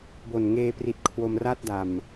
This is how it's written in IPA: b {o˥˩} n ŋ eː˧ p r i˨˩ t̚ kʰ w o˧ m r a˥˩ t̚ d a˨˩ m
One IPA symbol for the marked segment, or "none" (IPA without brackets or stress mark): o˨˩